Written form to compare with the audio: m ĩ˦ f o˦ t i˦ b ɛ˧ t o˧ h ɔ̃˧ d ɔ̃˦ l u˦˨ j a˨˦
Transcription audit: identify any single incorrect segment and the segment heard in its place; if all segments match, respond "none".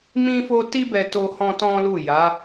d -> t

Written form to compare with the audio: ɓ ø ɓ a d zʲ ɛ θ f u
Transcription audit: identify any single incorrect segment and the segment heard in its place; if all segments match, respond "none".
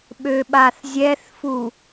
d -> θ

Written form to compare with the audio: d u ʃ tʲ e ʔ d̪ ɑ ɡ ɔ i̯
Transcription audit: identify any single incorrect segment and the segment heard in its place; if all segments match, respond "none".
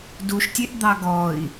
none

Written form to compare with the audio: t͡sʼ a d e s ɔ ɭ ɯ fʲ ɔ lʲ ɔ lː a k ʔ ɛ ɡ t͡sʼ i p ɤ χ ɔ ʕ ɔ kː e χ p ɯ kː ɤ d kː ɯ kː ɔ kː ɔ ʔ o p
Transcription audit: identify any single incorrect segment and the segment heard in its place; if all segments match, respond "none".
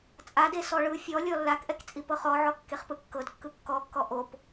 ɡ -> k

